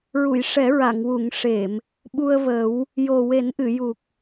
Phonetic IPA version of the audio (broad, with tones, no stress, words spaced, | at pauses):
ɹu˨˩˨jʂɛ˨˩˦ ɹa˨˩˨ŋwu˨˩˨ŋ ʂe˨˩˨m | ɓu˧ə̯ və˨˩˦w | jo˨˩we˨˩˦nʔɨ˨˩˨ ju˨˩k̚